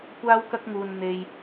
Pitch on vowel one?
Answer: high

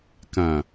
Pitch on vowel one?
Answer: low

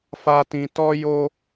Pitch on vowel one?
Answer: high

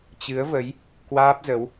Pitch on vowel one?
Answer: rising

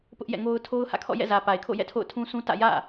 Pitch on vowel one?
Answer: high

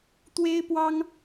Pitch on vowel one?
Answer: high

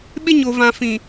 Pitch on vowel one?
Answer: high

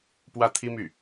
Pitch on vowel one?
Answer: falling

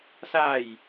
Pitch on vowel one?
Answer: falling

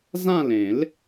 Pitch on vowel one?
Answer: falling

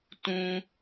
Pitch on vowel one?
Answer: high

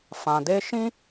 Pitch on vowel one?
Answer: low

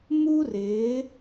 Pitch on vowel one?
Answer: high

